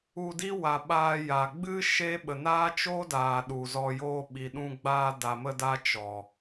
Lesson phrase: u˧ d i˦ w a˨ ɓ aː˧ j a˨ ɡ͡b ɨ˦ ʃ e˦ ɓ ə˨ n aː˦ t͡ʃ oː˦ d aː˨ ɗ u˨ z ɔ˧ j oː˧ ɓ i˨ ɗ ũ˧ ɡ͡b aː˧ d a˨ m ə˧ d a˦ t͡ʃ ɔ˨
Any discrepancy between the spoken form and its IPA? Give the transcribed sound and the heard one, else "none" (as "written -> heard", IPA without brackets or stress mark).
none